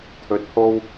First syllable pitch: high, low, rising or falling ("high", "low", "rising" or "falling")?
rising